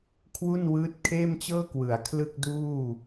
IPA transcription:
kʰ w u˥˩ n w ɯː˦˥ t̚ kʰ eː˥˩ m t͡ɕ ɤː˥˩ k w ɯ˩˦ a̯ kʰ l ɯ˥˩ k̚ d uː˥˩

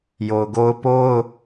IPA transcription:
j o˨ ʊ̯ ɡ o˦ ʊ̯ p o˦ ʊ̯

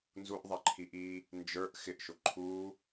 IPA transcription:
n z u ʔ ðˤ ɛ ǃʰ i ʔ iː | n d͡ʒ ə˞ ʔ x ɪ ʔ ʃ ʊ ǃʰ uː

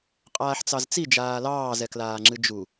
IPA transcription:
qʼ aː ħ t͡s ɑ z t͡s i d͡ʒ aː l ɑː z ɛ k l aː ŋ͡ǁ ɨ d͡ʒ u

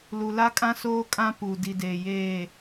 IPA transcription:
l u˨ l a˦ kʼ ã˦ s oː˦ kʼ ã˦ p u˨ d i˨ d eː˨ j eː˦˨

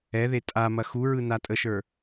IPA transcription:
ɛ ð e tʼ a m ɐ x u ɹ ɯ n a tʼ ə ʃ ə˞

